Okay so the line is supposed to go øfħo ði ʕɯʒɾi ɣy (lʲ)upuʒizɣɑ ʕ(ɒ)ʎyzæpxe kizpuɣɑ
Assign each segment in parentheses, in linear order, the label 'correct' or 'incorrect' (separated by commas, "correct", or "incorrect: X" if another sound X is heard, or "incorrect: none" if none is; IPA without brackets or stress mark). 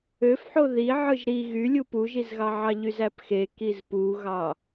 correct, incorrect: ɑ